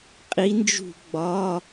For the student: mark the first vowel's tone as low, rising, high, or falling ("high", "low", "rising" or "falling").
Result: rising